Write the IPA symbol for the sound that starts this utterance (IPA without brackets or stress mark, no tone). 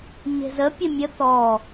ɲ